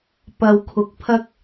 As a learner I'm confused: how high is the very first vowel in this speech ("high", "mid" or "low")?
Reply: low